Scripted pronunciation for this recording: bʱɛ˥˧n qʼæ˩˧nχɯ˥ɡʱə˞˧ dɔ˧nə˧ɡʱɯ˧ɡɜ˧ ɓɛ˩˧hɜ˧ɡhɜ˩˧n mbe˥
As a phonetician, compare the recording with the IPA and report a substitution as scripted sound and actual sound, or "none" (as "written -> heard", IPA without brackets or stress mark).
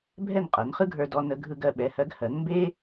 æ˩˧ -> ɜ˩˧